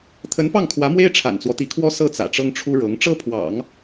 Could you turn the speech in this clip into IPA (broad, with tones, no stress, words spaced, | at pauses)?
t̪ʰə˧˥npɑ˥˩ŋkʰwä˧˥mwe˥ɪ̯ ʈ͡ʂʰa̰˨˩nt͡swɔ˦t̪i˧˥kʰwɔ˥ sɤ˥˩ t͡sä̰˨˩ʈ͡ʂɤ˥ŋʈ͡ʂʰu˥ɻɤ˧˥ŋ ʈ͡ʂɤ˥pʰwɑ̰˨˩˦ŋ